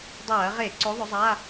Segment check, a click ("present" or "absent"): present